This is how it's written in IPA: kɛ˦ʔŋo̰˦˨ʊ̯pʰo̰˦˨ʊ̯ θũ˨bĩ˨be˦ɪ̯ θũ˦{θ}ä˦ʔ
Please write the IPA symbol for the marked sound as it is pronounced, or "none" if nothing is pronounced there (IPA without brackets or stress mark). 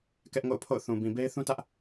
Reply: t